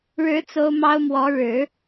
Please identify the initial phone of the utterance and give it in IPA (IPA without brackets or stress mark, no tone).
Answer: ɻ